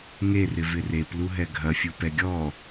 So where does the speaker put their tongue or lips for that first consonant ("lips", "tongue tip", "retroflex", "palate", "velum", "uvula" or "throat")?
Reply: velum